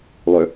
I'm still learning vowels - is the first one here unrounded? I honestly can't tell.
no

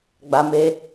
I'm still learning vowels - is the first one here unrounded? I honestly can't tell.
yes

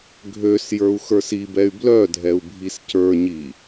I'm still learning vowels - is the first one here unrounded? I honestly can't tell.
no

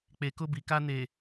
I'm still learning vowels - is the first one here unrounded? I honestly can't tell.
yes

